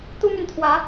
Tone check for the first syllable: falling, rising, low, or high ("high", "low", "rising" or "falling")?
high